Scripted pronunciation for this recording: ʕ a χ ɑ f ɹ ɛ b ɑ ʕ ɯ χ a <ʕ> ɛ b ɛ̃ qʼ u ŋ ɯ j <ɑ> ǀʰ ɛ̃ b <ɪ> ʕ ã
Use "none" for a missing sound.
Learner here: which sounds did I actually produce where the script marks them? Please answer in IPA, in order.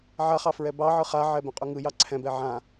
ʕ, ɑ, ɛ

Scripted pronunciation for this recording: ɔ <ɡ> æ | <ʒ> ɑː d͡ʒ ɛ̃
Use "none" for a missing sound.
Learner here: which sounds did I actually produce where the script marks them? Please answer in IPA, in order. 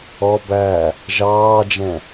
b, ʒ

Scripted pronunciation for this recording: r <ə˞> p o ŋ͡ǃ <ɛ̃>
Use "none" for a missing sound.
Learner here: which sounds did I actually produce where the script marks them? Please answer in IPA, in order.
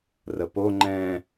ə, ɛ̃

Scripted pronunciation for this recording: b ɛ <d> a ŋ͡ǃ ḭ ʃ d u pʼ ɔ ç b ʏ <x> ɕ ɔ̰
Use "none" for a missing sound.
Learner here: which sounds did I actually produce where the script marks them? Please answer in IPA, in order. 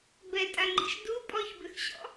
tʼ, x

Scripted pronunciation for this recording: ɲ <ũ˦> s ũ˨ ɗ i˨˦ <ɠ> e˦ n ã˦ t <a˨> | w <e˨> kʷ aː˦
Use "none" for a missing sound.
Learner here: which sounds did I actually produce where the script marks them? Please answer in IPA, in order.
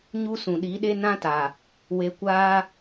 u˦, ɗ, a˨, e˧

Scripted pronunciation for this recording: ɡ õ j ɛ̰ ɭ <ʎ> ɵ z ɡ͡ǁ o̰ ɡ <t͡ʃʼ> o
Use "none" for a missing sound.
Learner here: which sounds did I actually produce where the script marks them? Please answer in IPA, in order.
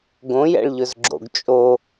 ʎ, t͡ʃʼ

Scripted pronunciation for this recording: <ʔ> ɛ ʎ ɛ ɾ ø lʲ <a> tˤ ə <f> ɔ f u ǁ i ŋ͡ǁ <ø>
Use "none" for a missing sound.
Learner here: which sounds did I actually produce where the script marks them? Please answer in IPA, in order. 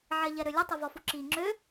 ʕ, ə, v, ø

